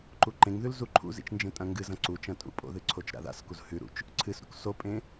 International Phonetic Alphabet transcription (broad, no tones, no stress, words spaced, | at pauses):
ǃuǃẽŋðʉl zuǃʰṵzḭt͡ʃ nd͡ʒẽtʼɐ̃ŋɡɨzɐ̃ ǀut͡ʃɐ̃ tʼṵpʼo̰ðɨ ǀʰot͡ʃɾa̰ða̰skuz hʉɾṵt͡ʃ | ǀʰɨsɾṵk sopʼẽ